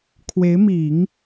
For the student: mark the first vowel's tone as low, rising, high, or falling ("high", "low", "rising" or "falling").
rising